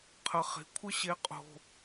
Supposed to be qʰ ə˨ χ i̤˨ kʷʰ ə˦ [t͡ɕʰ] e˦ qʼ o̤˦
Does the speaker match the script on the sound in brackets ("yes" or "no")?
no